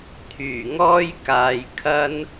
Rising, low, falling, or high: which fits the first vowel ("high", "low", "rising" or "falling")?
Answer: low